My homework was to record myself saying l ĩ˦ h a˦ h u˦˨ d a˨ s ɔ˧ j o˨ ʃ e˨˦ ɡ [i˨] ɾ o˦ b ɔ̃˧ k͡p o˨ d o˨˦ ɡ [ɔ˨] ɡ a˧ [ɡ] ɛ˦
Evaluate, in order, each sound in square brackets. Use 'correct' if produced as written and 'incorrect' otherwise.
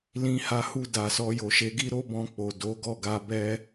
incorrect: i˦, incorrect: ɔ˦˨, incorrect: b

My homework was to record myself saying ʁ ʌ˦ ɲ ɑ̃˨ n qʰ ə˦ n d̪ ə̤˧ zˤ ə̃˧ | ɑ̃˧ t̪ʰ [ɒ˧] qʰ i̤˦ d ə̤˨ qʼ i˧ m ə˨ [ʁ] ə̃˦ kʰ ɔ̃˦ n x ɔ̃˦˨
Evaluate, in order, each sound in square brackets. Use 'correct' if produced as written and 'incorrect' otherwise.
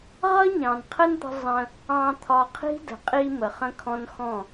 correct, incorrect: χ

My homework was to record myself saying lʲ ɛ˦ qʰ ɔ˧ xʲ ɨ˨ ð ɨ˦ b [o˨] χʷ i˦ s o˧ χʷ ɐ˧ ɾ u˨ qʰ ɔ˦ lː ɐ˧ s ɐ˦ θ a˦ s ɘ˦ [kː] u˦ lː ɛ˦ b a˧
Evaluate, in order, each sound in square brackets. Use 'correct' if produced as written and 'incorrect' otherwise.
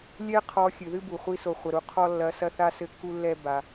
incorrect: u˨, correct

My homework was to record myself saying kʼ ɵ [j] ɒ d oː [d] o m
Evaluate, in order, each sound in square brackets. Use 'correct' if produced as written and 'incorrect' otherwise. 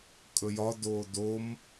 correct, correct

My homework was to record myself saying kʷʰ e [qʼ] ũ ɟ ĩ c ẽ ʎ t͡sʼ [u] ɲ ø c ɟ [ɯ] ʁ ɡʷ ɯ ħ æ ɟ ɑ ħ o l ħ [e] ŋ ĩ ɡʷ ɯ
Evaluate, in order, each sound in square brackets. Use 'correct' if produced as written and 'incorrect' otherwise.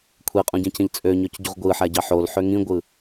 correct, incorrect: ø, incorrect: u, incorrect: ø

